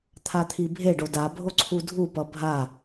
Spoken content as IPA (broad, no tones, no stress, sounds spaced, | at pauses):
t̪ʰ a t̪ʰ i bʱ e ɖ o d a bʱ o ǀʰ u dʱ u p ʌ bʱ a